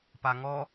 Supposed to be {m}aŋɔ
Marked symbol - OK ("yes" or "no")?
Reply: no